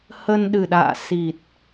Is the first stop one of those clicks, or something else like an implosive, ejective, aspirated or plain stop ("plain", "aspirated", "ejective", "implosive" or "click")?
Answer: implosive